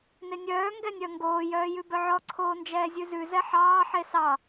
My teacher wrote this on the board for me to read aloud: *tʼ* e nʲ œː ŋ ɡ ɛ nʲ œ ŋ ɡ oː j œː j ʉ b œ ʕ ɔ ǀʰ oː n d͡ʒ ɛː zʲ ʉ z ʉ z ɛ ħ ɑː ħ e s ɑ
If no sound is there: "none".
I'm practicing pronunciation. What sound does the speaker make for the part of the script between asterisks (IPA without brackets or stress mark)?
n